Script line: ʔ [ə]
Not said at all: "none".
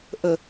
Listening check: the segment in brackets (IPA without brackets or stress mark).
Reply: ə